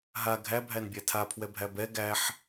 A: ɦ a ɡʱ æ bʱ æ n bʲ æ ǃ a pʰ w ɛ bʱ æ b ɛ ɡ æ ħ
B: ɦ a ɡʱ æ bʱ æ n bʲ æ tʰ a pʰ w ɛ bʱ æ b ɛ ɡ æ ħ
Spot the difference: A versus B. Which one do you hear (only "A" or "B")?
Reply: B